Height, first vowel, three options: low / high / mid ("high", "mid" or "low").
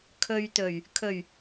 mid